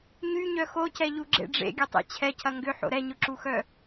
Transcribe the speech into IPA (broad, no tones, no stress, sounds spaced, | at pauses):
ɲ y ɲ œ x o c ɛ ʎ u ɡ͡ǁ ḛ ɖ͡ʐ ḛ ɡʲ ʊ tˤ ḛ t͡ɕʰ ɛ cʰ ɐ ŋ ɡ ʏ ħ o̰ ɾ ɛ ɲ ʊ ǁ u x œ